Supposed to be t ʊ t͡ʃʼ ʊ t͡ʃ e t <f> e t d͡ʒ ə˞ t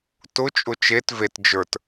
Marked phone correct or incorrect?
incorrect